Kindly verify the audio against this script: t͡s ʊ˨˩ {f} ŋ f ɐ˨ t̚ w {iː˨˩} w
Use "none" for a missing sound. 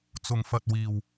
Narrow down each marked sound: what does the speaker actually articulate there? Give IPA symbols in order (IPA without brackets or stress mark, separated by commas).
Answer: none, iː˨˩